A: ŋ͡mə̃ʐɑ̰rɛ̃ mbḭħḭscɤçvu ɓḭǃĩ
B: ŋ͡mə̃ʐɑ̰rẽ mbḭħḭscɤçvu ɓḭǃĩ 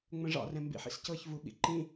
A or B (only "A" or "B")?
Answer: A